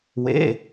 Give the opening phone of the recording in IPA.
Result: w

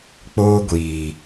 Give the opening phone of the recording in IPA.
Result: k͡p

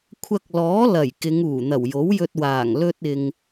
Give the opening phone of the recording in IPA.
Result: kʷʰ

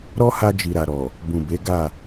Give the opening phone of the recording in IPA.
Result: ɾ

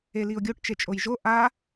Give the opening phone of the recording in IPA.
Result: e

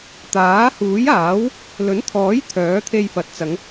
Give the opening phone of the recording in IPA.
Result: t̪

